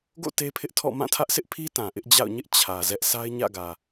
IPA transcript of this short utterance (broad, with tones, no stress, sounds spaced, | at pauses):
ɡ o̰˦˨ t e˦ pʰ ɪ˦ ʔ tʰ ɔ̰˦˨ m ã˦˨ tʰ ä˦ ʔ s ɪ˦ ʔ pʰ i˦ t ã˨ ʔ ɪ˦ ʔ d͡ʑ a̰˦˨ ʊ̯ ɲ ɪ˦ ʔ t͡ɕʰ ä˨ z ɛ˦ ʔ sʰ a˦ ɪ̯ ɲ ä̰˦˨ ɡ ä˨